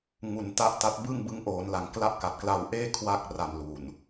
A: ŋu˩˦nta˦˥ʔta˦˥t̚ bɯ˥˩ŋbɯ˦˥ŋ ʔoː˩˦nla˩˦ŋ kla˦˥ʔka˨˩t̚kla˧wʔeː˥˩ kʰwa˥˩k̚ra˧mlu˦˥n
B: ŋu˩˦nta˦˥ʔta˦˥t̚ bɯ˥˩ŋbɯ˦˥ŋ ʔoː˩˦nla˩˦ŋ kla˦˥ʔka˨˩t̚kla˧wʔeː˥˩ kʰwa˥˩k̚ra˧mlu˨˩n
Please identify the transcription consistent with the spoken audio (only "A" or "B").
B